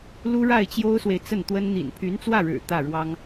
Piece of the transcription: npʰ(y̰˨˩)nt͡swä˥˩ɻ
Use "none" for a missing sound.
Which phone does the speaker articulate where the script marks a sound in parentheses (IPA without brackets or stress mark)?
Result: y˧˥